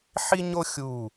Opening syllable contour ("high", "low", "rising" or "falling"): high